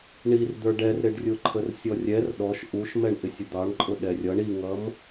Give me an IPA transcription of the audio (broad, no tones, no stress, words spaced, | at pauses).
ɳir d̪ə˞ɖɛrɾɪɖrʲʊ ǃʰərsʲɔrʲɛr ɗɔʃ ʔuʃmɛɳʔɪsʲʊ d̪ɑɳǃʼʊ ɗɛrʲʌɳ iŋʌm